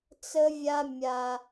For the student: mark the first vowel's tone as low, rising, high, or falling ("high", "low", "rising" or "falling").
high